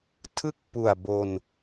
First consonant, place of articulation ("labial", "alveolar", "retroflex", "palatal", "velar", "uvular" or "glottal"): alveolar